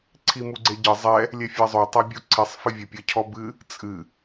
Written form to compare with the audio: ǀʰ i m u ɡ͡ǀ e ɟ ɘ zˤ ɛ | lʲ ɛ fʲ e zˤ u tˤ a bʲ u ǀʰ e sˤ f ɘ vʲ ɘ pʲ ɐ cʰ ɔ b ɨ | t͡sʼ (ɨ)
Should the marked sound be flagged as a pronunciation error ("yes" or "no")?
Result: no